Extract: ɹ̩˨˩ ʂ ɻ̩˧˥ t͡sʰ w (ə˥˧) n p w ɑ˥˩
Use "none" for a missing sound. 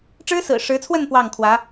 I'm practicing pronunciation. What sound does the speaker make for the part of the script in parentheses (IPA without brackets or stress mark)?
ə˥˧